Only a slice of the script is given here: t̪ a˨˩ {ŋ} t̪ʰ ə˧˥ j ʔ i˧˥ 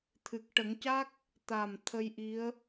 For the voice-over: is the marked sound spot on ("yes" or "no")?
no